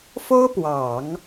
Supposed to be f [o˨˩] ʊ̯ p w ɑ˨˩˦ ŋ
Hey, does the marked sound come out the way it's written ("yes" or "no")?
no